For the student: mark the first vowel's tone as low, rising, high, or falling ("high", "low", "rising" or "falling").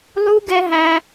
high